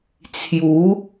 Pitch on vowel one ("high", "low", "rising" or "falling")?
rising